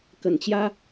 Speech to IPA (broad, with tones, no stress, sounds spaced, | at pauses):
k ə˨˩ n t͡ɕ j ä˦